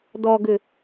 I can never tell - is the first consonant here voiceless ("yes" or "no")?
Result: no